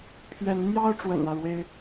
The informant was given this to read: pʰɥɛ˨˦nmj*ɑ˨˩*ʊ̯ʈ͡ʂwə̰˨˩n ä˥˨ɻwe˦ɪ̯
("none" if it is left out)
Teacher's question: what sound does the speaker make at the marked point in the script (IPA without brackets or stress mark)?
ɑ˦